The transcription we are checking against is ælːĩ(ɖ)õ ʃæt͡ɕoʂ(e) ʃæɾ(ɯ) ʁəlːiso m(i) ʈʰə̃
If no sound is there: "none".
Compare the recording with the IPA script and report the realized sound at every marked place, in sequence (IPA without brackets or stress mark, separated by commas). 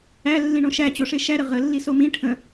ɳ, e, ə, ĩ